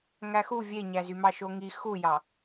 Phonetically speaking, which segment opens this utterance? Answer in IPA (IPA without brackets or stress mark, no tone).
ŋ